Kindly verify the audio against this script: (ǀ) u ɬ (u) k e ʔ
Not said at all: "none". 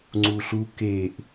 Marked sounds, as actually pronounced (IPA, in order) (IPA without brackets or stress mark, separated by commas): ŋ͡ǀ, u